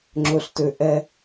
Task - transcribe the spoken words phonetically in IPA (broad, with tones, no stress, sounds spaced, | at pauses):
ŋ͡ǁ ɵ˨ ɬ t ø˨ ʔ ɛ˦